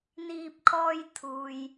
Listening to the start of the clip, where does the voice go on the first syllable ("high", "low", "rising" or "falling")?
low